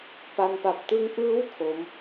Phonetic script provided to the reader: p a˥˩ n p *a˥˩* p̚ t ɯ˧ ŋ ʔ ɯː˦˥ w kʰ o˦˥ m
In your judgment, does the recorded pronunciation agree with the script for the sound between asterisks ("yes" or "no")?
no